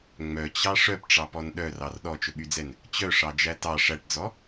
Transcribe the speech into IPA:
ŋ͡m œ t͡ɕ ɑ ʂ œ p ʈ͡ʂ ɑ p ɔ n ɗ œ r ɑ r ɗ ɔ t͡ʃ ɵ ɓ y d͡z ɛ n | t͡ɕ œ ʂ ɑ d͡ʒ æ t ɑ ʂ æ ʈ d͡z ɔ

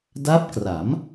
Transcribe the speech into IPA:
d a˦˥ p̚ k r a˩˦ m

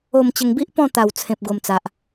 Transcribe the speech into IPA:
o˥˧ m t͡ɕ ə˧ ŋ b i˦ ʔ p ɔ̃˥˧ t̪ a˥˧ w t͡sʰ ẽ˦ p̚ ɡ o˦ m t͡s a˦ ʔ

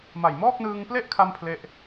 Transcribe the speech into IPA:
m a˨˩ j m ɔː˥˩ k̚ n ɯː˧ ŋ p l e˥˩ ʔ kʰ a˥˩ m pʰ l e˥˩ ʔ

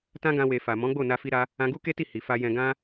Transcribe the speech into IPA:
t ã˦ ɡ ã˧ w e˨ f a˨ m ɔ̃˨˦ ɡ͡b o˦˨ n a˧ f i˧ ɾ a˧ | ã˧ ɡ u˦ k e˦ t i˦˨ h i˨ f a˧ j ɛ̃˧ ɡ ã˦

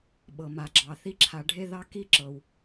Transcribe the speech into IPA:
ɓ ɤ˨ m a˨ ɡ͡ǁ ɑ˨ θ i˦ ǁʰ a˨ ɖʱ e˥ ð ɑ˦ k i˦ ǁ ɤ˩ w

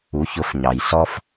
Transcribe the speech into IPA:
u˩˧ ç ʊ˩˧ f ɲ ɑ˩ j s ɔ˧ f

